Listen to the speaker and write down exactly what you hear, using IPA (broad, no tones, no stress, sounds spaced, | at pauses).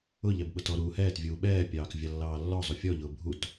ʊ ʎ ɛ b ɓ ʊ t ɔ ɾ uː h ɛː t vʲ uː ɓ ɛː pʲ ɑː k vʲ ɑ lː ɑː lː ɔ zˤ u fʲ ɔ ʎ ʊː bʱ u t